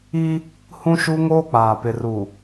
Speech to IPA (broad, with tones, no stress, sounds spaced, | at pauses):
i˦ | h ũ˦ ʃ u˦ ŋ oː˦ k͡p aː˨ p ɪ˨ r u˨